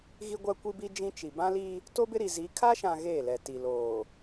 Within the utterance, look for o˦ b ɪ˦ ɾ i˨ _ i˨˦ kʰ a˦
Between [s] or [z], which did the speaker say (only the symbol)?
z